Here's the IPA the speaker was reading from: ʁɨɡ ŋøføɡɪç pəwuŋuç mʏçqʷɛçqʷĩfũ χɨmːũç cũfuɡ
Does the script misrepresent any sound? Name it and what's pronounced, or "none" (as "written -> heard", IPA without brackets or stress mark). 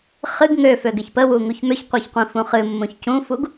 ʁ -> χ